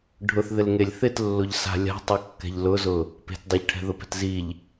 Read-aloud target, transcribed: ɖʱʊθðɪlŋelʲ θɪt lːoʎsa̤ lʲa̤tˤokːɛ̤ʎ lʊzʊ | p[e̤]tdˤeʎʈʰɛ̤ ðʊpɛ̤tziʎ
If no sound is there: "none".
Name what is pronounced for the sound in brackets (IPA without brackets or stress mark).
e̤